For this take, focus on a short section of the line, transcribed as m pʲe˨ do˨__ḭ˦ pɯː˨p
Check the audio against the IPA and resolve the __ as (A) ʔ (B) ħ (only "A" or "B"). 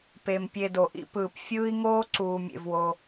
A